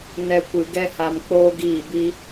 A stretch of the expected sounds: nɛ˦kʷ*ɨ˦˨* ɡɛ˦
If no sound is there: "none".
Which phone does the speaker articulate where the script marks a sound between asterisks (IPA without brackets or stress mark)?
ɨ˧